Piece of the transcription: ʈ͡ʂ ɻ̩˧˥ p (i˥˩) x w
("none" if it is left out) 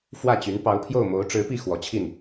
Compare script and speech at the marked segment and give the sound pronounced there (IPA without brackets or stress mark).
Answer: i˥˩